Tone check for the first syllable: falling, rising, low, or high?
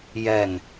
falling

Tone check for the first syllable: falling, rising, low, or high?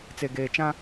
low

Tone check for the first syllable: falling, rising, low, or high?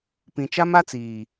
low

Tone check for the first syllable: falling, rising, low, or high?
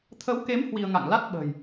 rising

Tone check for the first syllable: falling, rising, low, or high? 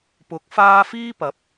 rising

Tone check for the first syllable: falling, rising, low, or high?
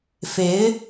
rising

